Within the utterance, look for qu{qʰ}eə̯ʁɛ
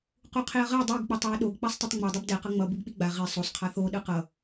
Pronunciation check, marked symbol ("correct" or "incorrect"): correct